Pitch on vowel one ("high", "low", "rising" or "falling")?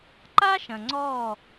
high